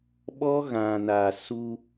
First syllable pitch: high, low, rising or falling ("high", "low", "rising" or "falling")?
high